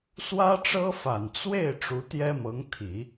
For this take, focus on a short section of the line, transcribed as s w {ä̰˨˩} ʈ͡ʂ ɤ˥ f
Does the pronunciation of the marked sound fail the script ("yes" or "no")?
yes